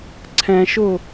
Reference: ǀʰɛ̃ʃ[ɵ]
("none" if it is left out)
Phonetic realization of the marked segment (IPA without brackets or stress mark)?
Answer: ʊ